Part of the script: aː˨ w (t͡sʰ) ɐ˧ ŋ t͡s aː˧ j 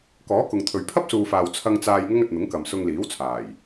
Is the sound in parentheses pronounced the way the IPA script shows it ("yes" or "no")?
yes